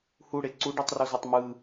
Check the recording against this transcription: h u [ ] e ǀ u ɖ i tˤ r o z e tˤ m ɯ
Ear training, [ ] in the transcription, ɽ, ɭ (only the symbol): ɽ